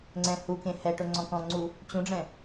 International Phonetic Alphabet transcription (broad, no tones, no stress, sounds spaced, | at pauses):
ŋ͡ǀ ɛ̃ h u k ẽ h ɛ ʈ ʊ ŋ͡ǀ ɔ̃ k ɔ̃ ŋ͡ǀ u | t͡ɕ ũ ɖ͡ʐ ɛ̃